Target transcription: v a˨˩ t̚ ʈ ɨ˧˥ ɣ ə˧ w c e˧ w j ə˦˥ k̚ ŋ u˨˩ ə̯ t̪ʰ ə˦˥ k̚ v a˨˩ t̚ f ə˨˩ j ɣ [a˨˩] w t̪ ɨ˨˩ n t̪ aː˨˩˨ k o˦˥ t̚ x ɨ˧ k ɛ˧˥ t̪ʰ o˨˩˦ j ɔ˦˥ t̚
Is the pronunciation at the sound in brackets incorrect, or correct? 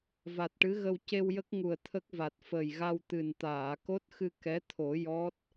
incorrect